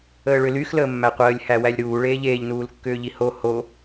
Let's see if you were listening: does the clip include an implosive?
no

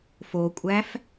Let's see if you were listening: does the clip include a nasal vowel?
no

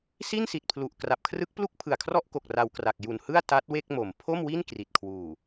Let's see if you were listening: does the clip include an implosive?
no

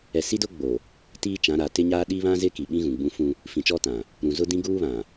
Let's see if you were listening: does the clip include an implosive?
yes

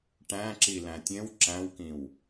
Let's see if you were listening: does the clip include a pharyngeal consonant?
no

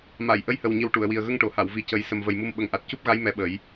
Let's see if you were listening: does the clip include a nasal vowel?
no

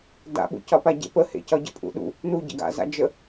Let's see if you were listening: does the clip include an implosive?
yes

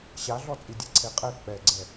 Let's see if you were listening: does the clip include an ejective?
yes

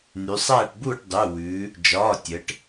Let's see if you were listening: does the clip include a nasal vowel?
no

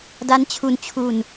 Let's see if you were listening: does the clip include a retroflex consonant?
no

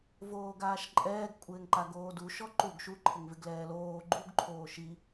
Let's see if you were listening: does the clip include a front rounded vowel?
no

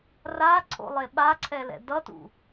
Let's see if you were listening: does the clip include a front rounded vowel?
no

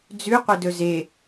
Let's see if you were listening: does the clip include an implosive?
no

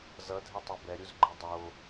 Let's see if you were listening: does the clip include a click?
yes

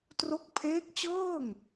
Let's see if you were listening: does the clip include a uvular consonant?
no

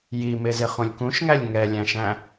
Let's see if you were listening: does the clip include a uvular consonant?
yes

